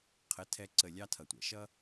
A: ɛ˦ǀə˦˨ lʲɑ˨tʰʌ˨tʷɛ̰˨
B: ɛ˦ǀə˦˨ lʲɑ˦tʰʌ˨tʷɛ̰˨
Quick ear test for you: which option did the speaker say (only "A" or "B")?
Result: B